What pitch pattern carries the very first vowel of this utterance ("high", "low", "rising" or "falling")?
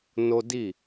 high